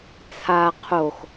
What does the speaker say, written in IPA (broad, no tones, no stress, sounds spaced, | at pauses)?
t͡sʰ a qʰ o x